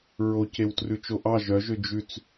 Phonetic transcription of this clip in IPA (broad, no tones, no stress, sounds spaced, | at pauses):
ɹ o c e w t r ʉ t͡ʃ o ʔ ɑ ʒ œ ʒ ø d͡ʒ ʉ t͡s